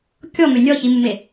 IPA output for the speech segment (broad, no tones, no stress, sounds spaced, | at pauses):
kʲ ɔ m ʏ nʲ ɔ ç i m u m e